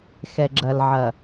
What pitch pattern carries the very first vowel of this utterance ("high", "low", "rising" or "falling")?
low